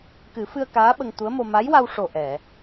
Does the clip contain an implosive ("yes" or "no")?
yes